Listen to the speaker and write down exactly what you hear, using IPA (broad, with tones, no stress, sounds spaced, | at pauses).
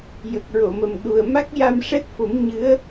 j ə˨˩ k̚ ɹ o˨˩˨ m ə˨˩ m ɗ u˨˩ ə̯ m a˦˥ k̚ j a˧ m ʂ ɛ˦˥ t̚ f o˨˩˦ m ɲ ɨ˧˥ ə̯